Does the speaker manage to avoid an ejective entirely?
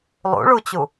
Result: yes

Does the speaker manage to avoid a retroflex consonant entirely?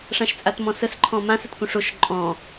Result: no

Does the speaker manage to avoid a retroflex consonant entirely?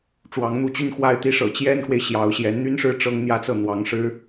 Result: no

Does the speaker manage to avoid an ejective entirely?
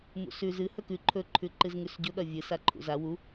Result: yes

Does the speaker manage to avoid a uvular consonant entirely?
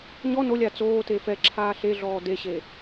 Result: yes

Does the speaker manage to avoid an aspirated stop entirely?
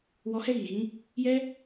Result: yes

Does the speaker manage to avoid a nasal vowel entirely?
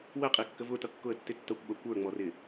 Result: yes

